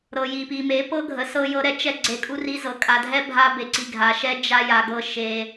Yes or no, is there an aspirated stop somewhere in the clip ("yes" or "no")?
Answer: no